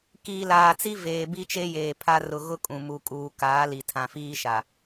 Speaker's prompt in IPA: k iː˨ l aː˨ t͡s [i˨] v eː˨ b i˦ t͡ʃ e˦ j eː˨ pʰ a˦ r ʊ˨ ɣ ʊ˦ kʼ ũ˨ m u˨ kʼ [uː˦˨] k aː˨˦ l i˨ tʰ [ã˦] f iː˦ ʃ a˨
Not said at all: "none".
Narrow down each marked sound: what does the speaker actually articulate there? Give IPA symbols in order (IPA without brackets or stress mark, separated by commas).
i˦, uː˨, ã˨